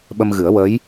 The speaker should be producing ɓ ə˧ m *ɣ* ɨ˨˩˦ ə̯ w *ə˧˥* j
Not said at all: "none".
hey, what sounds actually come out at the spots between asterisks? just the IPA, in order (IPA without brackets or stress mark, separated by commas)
ɣ, ə˧˥